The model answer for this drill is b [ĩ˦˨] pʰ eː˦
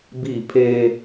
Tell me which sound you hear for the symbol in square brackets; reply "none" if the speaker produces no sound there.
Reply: i˦˨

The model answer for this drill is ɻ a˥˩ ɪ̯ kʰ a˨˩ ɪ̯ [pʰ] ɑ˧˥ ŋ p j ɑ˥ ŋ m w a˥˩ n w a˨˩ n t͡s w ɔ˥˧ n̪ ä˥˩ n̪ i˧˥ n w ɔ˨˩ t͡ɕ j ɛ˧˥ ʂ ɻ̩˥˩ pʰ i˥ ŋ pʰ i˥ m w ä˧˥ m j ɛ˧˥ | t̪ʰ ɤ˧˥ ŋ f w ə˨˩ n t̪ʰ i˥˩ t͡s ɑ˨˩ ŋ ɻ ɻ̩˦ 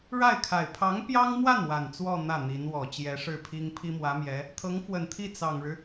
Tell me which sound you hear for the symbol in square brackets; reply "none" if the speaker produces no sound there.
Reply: pʰ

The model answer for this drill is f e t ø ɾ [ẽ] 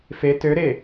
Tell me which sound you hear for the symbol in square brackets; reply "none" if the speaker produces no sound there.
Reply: e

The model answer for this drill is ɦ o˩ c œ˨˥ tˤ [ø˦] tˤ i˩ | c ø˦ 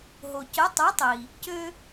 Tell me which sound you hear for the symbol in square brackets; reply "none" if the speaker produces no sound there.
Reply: ø˨˥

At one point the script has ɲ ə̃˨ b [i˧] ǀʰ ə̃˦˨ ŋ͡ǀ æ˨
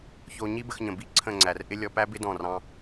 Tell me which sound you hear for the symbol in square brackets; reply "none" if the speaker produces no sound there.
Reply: i˦˨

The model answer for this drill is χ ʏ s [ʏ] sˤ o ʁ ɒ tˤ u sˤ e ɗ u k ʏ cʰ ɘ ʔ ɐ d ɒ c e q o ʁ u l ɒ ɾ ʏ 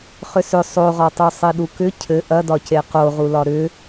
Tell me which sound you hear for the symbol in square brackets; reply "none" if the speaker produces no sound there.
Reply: ʏ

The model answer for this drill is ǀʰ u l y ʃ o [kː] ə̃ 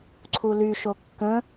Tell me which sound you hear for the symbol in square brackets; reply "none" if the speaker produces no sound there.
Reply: kː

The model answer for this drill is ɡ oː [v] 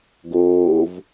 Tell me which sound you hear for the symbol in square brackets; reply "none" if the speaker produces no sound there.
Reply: v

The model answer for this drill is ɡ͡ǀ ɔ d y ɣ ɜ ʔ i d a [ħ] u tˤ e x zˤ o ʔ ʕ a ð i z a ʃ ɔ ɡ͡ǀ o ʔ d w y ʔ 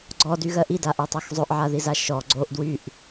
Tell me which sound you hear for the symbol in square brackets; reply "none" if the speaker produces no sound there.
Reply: ʔ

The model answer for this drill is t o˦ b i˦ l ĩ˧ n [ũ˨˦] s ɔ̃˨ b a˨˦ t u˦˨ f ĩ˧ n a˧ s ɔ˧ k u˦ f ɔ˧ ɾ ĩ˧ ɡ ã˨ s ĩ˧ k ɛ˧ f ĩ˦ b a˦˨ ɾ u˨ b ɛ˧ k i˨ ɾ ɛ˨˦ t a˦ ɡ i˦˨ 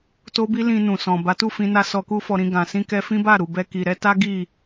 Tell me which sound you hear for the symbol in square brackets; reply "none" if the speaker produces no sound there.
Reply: ũ˨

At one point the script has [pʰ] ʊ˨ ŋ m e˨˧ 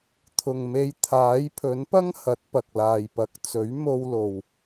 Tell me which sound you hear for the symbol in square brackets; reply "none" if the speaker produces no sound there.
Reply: t̪ʰ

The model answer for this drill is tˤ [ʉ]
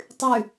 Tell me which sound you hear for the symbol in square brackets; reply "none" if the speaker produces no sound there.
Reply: ʉ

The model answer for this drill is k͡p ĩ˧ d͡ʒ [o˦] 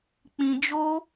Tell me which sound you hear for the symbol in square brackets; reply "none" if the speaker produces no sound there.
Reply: o˦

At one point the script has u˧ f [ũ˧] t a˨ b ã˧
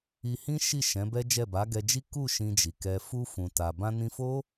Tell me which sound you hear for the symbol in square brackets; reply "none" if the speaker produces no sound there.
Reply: ũ˨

